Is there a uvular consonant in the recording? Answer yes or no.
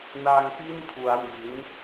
no